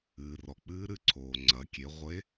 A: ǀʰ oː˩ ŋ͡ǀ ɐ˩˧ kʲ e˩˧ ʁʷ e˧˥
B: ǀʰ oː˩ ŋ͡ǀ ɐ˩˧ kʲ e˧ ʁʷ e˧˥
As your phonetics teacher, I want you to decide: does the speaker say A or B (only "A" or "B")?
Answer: A